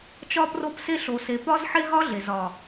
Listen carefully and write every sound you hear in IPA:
t͡ʃɒ˧pro˧pse˧ ɬo˨se˨ pɒ˦zħe˦ ɦɒ˦ɮe˨z ɒ˨

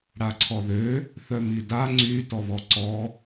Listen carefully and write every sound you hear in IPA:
ɽaǀʰɔðø | θœmida ŋ͡ǀy tɔβɔǀɔ

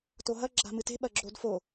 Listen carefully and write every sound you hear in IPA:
toɦɐ ɡ͡ǁa̤mɨte̤ ɓɐɡ͡ǁodfo

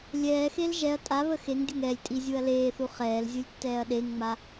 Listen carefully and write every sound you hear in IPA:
lʲɛːxel ʒɛɐ̯ tʼa βəxeŋdʲəŋ ɛlʲtʼi zʲuɐ̯leːθu χɛːlzʲulʲ tːɛːɐ̯ɗeŋŋ͡ma

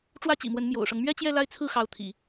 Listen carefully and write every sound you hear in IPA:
ʈ͡ʂwä˥t͡ɕḭ˨˩mwə˧˥n mjo̰˨˩ʊ̯ʂɤ˦ŋ mɥɛ˥t͡ɕjɛ˥˧ la˥˧ɪ̯ t͡sʰɹ̩˥˩xɑ˧˥ʊ̯t̪ʰḭ˨˩˦

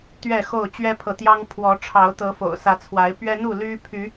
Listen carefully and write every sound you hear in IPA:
t̪ɥɛ˥˨xo˥˨ʊ̯ t͡ɕɥɛ˦pʰɤ˨t̪jɑ˦ŋ pʰwɔ˨˦ʈ͡ʂʰɑ˨˦ʊ̯ t̪ɤ˨˦fo̰˨˩ʊ̯sä˨˦t͡sʰwa˨˦ɪ̯ pɥɛ˦n̪u˥˨ ly˦ pʰy˨˦

